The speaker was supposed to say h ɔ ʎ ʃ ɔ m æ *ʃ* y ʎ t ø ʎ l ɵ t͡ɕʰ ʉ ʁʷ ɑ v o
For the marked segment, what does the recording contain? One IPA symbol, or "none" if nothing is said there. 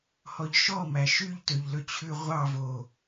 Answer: ʃ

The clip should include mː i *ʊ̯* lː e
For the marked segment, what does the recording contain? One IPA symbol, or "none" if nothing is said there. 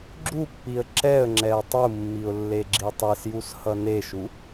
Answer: ʊ̯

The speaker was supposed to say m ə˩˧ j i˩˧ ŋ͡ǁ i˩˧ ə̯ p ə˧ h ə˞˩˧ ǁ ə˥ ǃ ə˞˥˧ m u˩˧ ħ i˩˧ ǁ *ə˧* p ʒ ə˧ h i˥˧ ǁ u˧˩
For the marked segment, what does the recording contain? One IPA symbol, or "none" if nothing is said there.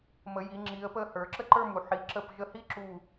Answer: ə˧˩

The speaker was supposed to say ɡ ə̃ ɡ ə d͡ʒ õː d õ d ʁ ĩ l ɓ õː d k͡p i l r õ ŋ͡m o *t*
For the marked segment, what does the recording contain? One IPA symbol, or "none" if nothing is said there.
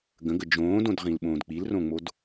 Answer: d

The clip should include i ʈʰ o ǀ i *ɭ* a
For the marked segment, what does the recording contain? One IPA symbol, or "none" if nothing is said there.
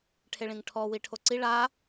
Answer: ɭ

